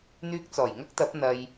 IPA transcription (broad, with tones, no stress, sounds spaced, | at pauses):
n̪ yː˧ k̚ t͡s ɔː˨˩ j ŋ ɐ˥ k̚ t̪ ɐ˨˥ p̚ n̪ ɐ˧ j